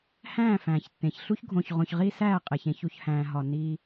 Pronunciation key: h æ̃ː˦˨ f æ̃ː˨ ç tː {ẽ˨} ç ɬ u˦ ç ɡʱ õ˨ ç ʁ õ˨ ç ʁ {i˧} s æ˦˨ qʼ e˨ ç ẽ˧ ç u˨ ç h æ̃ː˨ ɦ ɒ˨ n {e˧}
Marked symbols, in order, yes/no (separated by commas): yes, yes, no